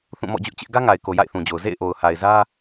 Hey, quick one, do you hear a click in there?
no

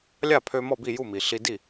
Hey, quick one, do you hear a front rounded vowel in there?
yes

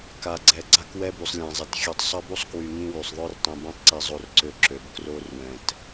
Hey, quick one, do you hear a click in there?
yes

